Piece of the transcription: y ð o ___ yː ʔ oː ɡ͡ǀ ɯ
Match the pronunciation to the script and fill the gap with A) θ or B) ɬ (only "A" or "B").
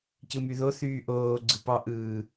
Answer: A